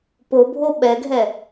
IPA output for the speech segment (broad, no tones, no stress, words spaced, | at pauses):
pobʱo ɓɛɡʱɛ